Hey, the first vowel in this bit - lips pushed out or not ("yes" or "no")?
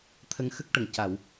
no